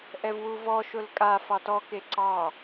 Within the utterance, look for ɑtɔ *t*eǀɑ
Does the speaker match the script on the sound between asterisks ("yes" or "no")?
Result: no